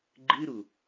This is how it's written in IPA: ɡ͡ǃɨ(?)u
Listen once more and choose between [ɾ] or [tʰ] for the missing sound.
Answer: ɾ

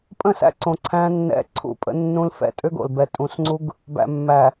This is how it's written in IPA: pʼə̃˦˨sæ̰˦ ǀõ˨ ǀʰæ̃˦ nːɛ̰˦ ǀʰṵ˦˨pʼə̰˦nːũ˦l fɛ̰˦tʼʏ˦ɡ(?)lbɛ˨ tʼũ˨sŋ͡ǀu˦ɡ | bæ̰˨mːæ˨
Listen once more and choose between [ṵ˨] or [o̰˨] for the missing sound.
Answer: o̰˨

